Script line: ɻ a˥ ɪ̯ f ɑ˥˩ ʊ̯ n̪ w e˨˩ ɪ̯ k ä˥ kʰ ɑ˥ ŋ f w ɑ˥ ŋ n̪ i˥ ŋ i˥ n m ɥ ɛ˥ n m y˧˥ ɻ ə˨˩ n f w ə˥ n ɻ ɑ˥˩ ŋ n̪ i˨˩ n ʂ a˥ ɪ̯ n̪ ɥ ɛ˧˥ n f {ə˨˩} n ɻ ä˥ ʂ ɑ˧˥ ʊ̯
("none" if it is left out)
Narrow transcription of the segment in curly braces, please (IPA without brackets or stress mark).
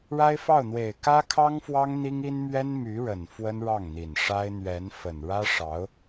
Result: ə˨˩